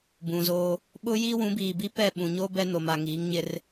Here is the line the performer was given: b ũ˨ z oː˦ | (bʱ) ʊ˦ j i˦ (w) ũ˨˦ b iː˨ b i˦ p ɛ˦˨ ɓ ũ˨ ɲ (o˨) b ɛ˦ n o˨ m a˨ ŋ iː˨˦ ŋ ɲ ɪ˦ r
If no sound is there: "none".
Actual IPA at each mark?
ɓ, w, o˦

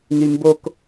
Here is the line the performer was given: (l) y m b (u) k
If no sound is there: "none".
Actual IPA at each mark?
n, o

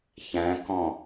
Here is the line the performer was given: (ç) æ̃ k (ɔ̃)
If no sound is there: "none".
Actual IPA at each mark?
ç, ɔ̃

